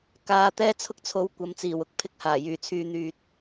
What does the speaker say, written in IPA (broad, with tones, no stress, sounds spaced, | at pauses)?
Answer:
k aː˧ t̪ ɛː˥ t͡sʰ ʊ˥ k̚ t͡sʰ o˨˧ w kʷ ɐ˨˧ m t͡s iː˨˩ w ʊ˥ k̚ pʰ ɪ˧ k̚ h aː˨˩ j yː˨˩ t͡sʰ yː˨ n̪ yː˨ t̚